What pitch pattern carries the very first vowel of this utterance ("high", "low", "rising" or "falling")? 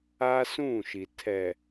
high